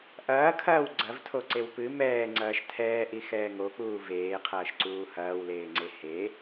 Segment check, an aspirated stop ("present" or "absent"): present